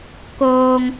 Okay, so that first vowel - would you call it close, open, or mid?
mid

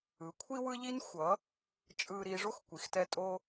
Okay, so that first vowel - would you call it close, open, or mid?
close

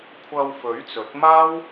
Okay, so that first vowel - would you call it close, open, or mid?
open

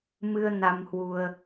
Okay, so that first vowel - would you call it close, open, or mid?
close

